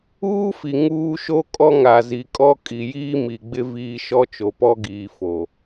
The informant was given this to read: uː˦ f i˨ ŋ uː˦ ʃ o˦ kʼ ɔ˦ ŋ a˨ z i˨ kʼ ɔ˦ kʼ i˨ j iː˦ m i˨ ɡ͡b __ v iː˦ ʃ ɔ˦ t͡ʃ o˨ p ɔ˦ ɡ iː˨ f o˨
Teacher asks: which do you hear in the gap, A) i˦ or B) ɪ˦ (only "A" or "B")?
B